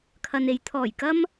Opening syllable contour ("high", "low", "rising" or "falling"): low